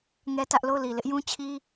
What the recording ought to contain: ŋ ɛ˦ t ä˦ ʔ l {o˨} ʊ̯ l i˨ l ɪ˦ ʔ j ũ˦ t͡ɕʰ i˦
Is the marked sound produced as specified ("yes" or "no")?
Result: no